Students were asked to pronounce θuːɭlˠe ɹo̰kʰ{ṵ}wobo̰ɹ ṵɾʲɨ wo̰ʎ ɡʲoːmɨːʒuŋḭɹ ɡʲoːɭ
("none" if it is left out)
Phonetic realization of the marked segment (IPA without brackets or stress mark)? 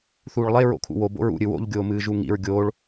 ṵ